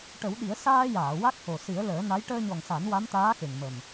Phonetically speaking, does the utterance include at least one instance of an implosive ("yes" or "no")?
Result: yes